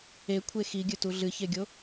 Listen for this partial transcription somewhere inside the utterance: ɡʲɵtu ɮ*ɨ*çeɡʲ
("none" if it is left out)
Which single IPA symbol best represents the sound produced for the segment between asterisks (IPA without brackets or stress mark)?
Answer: ɨ